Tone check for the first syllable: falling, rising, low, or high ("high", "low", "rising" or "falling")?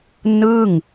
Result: falling